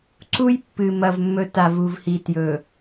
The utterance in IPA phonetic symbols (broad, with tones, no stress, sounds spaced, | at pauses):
ǀ u˦ j pː ɨ˨ m ɐ˨ v mː ɵ˨ t a˨ v u˨ v h i˨ t j ɵ˨